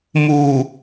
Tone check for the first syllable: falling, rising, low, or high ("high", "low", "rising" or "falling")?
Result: low